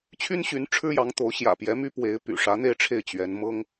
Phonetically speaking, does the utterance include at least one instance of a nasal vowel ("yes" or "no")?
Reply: no